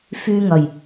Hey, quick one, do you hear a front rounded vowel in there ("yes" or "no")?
yes